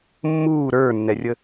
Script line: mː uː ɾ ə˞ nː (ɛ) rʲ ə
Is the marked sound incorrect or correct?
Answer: correct